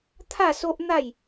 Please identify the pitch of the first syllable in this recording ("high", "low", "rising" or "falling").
falling